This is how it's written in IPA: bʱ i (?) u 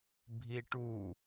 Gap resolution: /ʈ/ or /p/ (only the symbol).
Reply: ʈ